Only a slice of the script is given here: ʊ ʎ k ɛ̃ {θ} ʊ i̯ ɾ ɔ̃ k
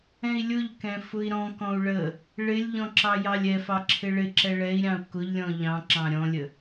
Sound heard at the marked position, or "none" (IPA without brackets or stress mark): f